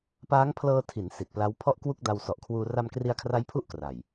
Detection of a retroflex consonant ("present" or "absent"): absent